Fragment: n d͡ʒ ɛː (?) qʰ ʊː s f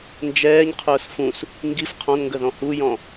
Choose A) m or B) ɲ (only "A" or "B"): B